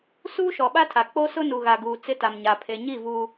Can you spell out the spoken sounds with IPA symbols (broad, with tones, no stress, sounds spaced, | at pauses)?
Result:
s uː˦ ʃ ɔ˨ ɓ a˦ tʰ a˨ k͡p o˦ s ʊ˦ n u˨ ɣ a˨ ɡ uː˨ t͡s ɪ˦ t a˨ m ɲ a˨ pʰ e˨ ɲ i˦˨ v uː˨